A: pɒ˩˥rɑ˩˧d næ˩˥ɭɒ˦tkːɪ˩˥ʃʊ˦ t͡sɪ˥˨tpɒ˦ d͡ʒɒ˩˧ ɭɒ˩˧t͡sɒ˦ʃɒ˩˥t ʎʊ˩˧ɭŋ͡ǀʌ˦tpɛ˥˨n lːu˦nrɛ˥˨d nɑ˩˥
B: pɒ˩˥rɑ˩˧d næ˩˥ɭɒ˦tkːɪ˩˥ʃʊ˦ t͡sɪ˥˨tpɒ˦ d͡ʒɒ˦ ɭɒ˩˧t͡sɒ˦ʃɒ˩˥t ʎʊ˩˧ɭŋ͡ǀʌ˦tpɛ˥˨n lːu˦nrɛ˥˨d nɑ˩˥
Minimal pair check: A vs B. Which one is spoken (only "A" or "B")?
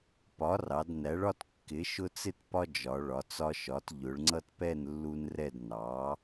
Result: A